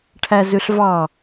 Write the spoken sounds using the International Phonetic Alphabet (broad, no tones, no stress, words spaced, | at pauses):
ʈʰæzøɬvɑ